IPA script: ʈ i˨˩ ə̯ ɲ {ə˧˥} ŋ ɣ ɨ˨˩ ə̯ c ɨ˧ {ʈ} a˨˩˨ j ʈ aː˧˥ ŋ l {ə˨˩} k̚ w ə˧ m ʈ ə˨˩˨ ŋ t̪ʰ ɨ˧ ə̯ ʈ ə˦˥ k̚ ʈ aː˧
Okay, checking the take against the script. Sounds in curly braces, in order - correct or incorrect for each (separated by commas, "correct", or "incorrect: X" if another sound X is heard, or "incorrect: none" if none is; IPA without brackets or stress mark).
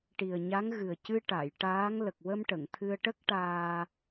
incorrect: a˧˥, correct, correct